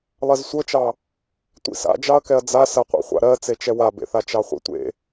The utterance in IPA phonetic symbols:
lˠɜzsʷɤt͡ʃɑ | tʷḭsa̰d͡ʒɑɐ̯kɛɐ̯ d͡za sɐqʷa̰ χʷa̰ɾɜt͡set͡ʃɛ wabḛθa t͡ʃɑχʷḛtʷḛ

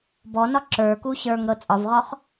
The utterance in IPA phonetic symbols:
bɔnɒ ǁə˞ku ɕə˞ŋɾɤ t͡sʼɒvʁɔχ

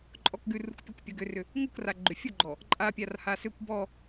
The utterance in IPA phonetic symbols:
ǃʼɔkɡʉruk pʲukʷpʲɔɡʏrʏ | ŋukraɡ͡ǃʏ fʲɔɡ͡ǃɔ | ǃʼapʲar hasʏkʷ bɔ

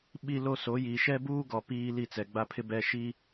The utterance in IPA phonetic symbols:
ɓi˦lo˦so˨˦ ji˨ʃɛ˦buː˦ɡɔ˨ piː˦ li˦˨t͡sɛ˨ɡ͡ba˦pʰɪ˦ bɛ˦ʃi˦

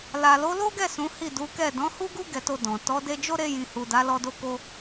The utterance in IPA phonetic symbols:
la˨lo˨˦lo˦ɡɛ˦˨ sũ˨˦hi˦˨du˨˦kɛ˦˨ dɔ̃˨˦hu˦ɡu˦ ɡɛ˧to˧ dɔ̃˨ tɔ˨˦de˧ d͡ʒo˦ɾe˧jĩ˨hu˨ da˨˦lɔ˧ do˧ko˧

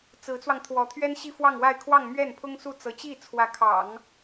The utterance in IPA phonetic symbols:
t͡sɹ̩˧˥t͡swɑ˧ŋt̪ʰwɔ˧˥t̪ʰɥɛ˥n ɕi˥fwɑ˥˧ŋwa˥˧ɪ̯ kʰwɑ˥˧ŋmɥɛ˥˩npʰʊ˥ŋsu˥˩ t͡sɤ˧˥t͡ɕi˥˩ t͡sʰwä˧˥kʰɑ̰˨˩˦ŋ

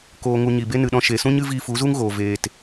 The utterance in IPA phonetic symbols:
koː˧ŋu˧ɲi˨be˦ nɨ˨ɗɔ̃˧ʃe˨sũ˦ ɲɨ˦viː˧fu˨˦zu˦ŋ ɣoː˨ veː˨t

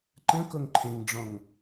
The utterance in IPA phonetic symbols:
ǃə̃koŋ ǃʰẽŋɖ͡ʐɔ̃ŋ

